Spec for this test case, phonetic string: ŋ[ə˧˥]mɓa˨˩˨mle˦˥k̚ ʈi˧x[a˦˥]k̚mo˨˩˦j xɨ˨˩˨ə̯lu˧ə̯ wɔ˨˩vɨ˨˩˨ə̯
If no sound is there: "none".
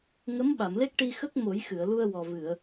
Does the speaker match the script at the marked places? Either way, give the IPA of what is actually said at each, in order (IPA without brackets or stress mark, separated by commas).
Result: ə˧˥, ə˦˥